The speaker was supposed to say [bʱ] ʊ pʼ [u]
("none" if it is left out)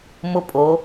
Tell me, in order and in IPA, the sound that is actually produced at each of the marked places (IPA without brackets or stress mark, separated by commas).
m, o